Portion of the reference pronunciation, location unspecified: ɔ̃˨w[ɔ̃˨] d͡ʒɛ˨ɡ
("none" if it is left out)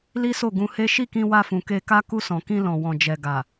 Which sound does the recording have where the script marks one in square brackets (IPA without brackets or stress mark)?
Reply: ɔ̃˨